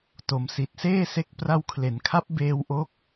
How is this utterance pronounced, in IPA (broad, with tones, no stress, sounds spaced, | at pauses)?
t o˨˩ m s i˨˩ t̚ s eː˥˩ s e˦˥ k̚ p r a˧ w kʰ l e˩˦ n kʰ a˦˥ p̚ b eː˧ w ʔ o˦˥ k̚